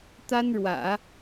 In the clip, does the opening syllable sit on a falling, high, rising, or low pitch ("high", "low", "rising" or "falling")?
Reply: high